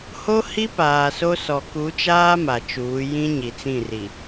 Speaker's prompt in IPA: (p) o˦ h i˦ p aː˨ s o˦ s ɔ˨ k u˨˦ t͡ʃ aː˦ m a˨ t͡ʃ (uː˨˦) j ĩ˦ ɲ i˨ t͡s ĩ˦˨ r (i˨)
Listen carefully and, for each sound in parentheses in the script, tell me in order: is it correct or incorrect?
incorrect, correct, correct

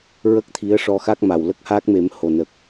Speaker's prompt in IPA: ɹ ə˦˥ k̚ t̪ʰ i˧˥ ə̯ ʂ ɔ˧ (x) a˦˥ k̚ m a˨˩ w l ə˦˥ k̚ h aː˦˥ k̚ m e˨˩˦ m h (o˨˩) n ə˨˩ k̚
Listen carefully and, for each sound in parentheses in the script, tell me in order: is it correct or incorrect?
correct, correct

